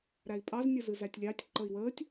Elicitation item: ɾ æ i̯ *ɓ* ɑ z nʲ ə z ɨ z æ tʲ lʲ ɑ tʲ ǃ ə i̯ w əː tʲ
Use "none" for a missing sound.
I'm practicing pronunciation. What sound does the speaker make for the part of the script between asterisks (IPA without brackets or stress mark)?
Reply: pʼ